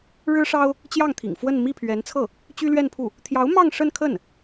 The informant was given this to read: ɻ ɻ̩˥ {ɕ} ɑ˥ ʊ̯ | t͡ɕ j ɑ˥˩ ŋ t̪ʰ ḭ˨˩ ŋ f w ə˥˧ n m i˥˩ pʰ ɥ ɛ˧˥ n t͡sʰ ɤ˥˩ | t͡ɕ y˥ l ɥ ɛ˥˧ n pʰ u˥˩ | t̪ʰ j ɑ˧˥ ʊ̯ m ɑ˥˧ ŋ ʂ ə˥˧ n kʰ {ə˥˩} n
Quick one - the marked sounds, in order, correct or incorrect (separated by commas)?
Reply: incorrect, correct